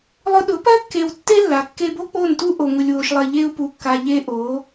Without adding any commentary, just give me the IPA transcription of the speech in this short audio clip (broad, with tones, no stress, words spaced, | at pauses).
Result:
lˠʊ˧ɗʊ˨˦pɜ˦ kːe˧w tːe˦lːa˨ kːe˧bo˦k͡po˦˨ntu˦ ʔo˨ŋʊ˨lʲwo˨ʃlˠɜ˨ ʎe˧u̯pu˨kːa˨ ʎe˧ ʔo˨˦